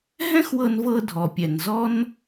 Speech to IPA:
ɦ ɛ̃˥ x w ɤ˧ n v ɤ˧ dʱ ɔ˩ pʲ ɛ˩ n z ɔ˥ n

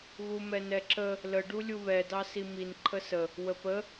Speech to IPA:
ɣ u m ɛ n ɛ ǁ ə | l ə ɖ u lʲ u β ɛ d ɑ s i m i n ǃʰ ə s ə | w ə p ə

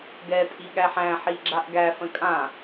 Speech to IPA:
ɡ ɛ tʼ i ɠ æ ħ æ̃ ħ i ɡ͡ǁ a ʔ ɡ æ f ə̃ kʼ ã

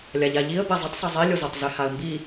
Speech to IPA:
lʲ a ʎ a ʎ i ə̯ b ɛ zˤ ə tˤ sˤ e zˤ i lʲ o z o tˤ z e h a ə̯ m b i

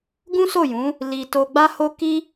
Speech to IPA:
ɡ ũ˦ s o˦˨ j ũ˨˦ | l i˧ t o˧ ɡ͡b a˦ h o˦ k i˦

